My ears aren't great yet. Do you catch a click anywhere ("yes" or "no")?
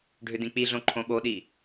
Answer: yes